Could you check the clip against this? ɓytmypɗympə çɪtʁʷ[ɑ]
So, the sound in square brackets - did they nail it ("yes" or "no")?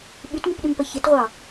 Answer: yes